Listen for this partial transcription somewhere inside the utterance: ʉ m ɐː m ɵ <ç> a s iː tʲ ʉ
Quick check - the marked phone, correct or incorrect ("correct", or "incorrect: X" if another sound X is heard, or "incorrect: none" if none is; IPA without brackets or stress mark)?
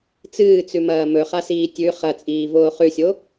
incorrect: χ